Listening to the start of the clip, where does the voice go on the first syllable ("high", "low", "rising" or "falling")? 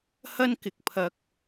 high